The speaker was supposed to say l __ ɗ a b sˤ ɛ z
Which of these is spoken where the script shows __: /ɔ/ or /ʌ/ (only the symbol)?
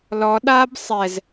ɔ